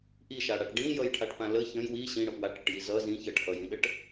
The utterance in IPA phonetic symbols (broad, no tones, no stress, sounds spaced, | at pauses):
ʔ i ʃ a ɽ a ʈ ɖ ĩ j ʌ j ʈʰ a ʈ p ã l ə ç ə̃ j w i ɕ ĩ ɽ ə p w a ʈ ɽ ʌ ʈ j i z ʌ z ĩ ç ə ʈ ʔ ʌ j ĩ ɗ ə ʈ